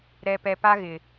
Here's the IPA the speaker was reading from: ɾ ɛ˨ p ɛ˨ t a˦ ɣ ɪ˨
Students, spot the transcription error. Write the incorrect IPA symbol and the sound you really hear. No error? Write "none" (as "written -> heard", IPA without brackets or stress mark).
t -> p